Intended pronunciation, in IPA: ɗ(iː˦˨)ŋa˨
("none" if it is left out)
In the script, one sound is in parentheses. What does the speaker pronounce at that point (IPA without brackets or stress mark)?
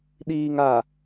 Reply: iː˨